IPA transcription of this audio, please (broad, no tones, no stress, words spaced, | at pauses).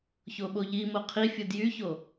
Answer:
çoɓoʎimo qʰifʲɯd jyço